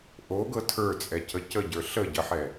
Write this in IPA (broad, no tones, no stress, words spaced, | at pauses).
ʔoɡɤ tʰə˞t͡sʼɛcə cəɟə˞ ɬəɟəħɛ